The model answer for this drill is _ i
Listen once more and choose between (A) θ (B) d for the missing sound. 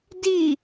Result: B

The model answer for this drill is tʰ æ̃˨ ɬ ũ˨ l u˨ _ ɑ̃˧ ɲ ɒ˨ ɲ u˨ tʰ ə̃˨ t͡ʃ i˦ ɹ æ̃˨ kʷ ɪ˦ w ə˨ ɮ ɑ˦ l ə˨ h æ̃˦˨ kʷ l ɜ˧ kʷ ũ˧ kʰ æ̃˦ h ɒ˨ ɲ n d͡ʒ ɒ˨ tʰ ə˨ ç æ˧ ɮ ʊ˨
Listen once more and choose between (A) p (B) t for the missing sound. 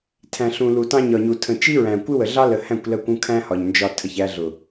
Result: B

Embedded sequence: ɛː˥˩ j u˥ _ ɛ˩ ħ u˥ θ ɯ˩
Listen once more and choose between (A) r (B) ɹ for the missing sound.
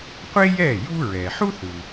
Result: B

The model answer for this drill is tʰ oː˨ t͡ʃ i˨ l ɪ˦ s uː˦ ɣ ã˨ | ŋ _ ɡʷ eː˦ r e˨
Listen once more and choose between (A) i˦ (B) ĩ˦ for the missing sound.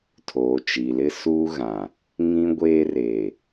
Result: B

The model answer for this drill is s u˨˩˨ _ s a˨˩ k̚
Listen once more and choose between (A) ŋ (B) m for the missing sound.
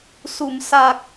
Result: B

